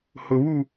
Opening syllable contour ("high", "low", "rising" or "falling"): low